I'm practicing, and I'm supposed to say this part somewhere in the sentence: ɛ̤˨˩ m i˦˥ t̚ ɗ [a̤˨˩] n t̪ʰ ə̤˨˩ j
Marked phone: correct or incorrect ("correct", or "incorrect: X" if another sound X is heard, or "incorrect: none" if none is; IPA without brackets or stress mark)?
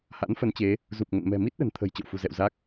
incorrect: ə̤˨˩